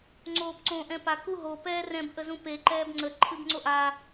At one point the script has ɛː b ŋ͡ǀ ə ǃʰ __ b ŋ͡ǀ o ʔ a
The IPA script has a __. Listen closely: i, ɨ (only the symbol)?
ɨ